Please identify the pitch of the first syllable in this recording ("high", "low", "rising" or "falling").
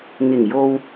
low